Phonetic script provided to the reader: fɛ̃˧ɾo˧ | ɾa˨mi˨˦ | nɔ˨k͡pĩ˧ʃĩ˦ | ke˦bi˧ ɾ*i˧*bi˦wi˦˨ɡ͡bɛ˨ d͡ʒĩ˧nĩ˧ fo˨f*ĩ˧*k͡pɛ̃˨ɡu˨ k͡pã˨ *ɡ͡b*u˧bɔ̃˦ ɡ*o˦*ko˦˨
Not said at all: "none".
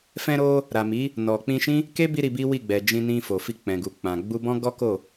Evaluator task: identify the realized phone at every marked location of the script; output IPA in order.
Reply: i˧, i˧, ɡ͡b, ɔ˦

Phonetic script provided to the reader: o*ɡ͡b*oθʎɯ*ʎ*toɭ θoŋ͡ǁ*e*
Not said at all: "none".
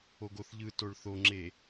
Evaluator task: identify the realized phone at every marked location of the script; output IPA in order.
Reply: ɡ, none, e

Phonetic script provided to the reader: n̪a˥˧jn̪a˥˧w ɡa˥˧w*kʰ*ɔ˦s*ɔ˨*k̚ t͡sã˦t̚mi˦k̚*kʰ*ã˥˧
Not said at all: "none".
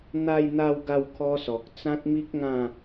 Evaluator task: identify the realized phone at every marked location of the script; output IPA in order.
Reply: kʰ, ɔ˨, ŋ

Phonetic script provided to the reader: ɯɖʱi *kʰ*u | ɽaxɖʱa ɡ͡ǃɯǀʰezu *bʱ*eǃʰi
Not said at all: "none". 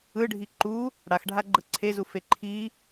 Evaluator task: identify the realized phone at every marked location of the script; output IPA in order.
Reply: ǃ, f

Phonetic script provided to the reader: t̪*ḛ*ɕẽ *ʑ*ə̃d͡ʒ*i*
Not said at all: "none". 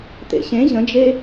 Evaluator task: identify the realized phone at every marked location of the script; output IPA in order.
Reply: ḛ, ʑ, e

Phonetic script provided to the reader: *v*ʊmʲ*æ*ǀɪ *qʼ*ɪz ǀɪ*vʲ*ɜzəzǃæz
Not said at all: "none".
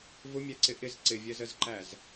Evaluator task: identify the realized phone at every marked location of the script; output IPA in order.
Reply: v, æ, ʔ, vʲ

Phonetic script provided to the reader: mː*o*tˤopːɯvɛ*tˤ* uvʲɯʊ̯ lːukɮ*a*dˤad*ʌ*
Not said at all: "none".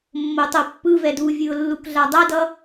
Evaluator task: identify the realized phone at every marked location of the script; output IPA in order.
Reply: o, d, a, ʌ

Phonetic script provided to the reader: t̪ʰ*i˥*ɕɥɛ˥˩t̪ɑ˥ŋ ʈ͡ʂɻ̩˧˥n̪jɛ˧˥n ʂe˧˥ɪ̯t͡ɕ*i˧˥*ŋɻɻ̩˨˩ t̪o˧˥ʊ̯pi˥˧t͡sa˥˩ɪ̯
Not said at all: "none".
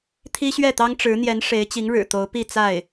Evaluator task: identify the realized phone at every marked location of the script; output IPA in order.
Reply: i˥, i˧˥

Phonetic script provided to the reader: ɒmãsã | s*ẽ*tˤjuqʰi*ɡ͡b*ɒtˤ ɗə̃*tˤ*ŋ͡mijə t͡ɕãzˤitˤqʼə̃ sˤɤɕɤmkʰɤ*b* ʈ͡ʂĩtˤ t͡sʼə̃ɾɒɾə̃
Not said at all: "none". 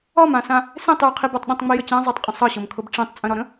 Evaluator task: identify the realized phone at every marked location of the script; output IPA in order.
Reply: ẽ, b, tˤ, b

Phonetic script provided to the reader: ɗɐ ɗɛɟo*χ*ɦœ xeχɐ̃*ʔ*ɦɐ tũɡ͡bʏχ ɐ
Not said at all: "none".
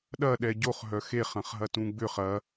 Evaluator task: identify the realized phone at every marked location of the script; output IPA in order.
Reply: χ, χ

